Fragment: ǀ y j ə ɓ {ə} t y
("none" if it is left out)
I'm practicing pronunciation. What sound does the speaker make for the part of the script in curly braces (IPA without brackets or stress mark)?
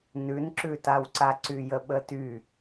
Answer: ə